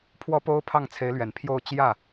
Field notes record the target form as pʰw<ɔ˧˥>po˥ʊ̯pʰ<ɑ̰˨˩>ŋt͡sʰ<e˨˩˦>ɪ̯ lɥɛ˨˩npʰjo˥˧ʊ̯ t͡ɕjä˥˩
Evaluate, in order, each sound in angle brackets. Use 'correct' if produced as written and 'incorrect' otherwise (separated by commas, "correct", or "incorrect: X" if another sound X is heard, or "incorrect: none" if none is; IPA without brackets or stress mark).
incorrect: ɔ˥, incorrect: ɑ˥˩, incorrect: e˧˥